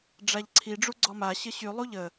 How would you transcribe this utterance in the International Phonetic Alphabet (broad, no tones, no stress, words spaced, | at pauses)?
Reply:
ɖ͡ʐaʎǀʰi ɖ͡ʐuɡ͡ǀɔma ɕəɕy lˠuʎə